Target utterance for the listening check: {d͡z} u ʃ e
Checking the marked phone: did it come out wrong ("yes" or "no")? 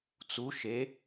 yes